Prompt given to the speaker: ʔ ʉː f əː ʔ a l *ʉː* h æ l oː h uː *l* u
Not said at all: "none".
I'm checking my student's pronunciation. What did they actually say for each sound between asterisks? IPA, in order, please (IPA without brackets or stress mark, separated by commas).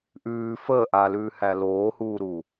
ʉː, ɾ